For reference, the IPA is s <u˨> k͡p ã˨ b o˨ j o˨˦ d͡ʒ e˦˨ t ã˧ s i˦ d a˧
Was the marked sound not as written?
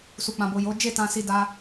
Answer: no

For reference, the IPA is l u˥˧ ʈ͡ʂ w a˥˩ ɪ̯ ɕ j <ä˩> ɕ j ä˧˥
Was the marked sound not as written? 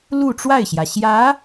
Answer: no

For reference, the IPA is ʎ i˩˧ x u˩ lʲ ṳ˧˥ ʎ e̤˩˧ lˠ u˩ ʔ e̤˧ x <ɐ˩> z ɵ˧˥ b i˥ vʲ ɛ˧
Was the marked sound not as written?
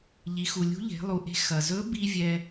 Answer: no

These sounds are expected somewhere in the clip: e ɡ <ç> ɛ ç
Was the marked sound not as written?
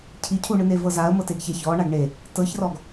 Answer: no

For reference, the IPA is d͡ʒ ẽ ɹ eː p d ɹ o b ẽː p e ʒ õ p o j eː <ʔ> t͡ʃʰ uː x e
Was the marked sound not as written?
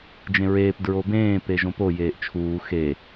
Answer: no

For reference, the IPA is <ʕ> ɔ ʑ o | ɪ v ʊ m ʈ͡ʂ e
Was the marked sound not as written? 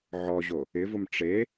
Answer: no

